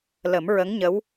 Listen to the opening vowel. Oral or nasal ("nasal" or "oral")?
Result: oral